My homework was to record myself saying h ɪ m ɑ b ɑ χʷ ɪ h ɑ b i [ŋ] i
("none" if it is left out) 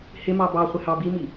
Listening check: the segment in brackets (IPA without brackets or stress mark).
m